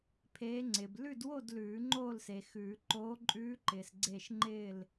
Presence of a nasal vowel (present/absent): absent